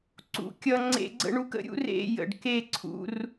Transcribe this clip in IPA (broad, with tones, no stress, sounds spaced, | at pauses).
ǀ ṵ˧ kʲ ʌ˧ ŋ͡ǀ ḛ˧˥˧ ɡ͡ǀ ə̰˧˥˧ ɳ u˧˥ k ə̰˧˥ ɾʲ ṵ˧˥ r ḛ˧˥˧ j ə̰˨˩ ɖ k e˥˧ ǀʰ ṵ˧˥˧ r